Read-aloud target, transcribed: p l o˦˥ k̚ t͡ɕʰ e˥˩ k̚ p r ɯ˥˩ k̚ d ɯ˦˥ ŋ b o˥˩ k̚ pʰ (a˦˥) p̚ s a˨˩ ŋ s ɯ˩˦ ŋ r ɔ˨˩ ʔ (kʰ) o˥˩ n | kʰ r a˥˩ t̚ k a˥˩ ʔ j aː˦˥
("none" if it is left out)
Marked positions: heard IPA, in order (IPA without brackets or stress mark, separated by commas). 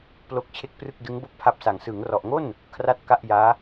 a˦˥, ŋ